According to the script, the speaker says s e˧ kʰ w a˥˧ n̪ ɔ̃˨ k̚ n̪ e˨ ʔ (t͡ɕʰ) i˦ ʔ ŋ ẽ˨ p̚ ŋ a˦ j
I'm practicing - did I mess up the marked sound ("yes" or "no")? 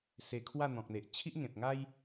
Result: no